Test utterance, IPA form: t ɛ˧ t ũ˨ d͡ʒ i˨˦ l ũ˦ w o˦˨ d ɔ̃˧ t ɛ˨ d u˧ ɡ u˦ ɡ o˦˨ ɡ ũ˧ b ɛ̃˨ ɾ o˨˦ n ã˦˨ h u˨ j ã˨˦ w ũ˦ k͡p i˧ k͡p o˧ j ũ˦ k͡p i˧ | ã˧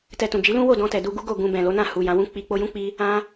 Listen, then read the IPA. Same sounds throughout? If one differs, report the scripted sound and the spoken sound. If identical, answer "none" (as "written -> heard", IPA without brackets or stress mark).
ɾ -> l